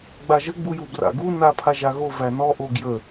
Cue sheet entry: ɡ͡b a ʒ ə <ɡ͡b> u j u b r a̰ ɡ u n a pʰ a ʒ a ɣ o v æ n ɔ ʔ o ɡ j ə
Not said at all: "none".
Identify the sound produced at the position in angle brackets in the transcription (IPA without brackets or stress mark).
ɡ͡b